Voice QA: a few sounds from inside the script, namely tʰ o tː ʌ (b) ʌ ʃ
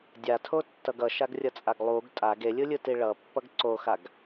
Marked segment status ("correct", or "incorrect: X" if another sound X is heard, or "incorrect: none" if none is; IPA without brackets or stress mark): incorrect: ɡ